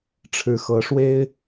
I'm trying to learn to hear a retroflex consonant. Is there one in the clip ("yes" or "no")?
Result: yes